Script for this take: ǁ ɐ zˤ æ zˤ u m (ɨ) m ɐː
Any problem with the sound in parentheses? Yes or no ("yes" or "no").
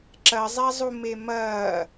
yes